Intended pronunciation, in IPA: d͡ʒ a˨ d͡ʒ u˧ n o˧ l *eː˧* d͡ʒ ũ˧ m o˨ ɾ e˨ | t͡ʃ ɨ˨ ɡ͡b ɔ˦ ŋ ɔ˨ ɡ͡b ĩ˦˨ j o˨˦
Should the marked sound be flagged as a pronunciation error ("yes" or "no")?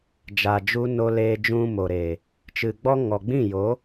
no